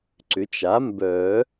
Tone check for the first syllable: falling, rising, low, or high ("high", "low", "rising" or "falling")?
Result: rising